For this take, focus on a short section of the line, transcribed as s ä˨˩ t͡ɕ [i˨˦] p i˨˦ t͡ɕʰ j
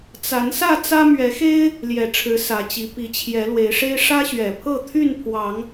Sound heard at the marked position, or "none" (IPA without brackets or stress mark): i˨˦